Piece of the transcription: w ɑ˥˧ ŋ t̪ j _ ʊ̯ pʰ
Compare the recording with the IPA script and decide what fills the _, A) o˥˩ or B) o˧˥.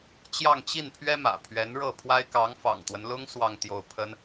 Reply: A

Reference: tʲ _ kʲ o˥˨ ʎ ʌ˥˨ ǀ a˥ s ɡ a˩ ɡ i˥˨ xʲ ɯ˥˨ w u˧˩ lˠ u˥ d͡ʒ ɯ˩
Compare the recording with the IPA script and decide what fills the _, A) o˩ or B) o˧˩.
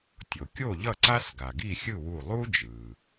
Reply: A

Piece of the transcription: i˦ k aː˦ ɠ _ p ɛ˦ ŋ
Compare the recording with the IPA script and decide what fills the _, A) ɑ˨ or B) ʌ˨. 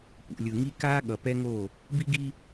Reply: B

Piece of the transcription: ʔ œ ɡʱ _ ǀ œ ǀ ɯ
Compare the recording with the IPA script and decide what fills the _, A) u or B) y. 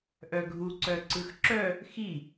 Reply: A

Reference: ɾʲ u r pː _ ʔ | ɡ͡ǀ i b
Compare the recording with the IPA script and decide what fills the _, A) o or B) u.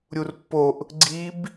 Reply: A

